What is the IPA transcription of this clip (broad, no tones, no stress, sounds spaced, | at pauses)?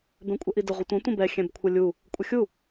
b ɛ̃ kʷʼ ɛ ʔ i d ə ʁʷ ə tʷ ɐ̃ tʷ ə̃ b ɛ xʲ ɛ̃ b kʷʰ ə lʲ u | kʷʼ ə xʲ u